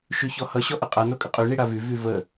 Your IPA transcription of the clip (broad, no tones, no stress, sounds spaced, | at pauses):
ʃ y ç ɔ h ʌ ɕ ɔ ʔ ə qʼ a n o kʼ ə qʼ y ɳ i ɽ a v y v y v ə